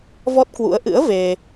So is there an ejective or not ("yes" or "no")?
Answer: no